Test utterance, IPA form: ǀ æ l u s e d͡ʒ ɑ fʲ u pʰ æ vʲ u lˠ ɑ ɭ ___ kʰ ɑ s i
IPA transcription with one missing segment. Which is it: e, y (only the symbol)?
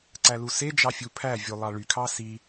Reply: y